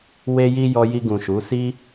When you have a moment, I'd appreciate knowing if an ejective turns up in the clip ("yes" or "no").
no